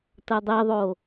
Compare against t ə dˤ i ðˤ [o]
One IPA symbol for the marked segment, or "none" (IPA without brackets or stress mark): o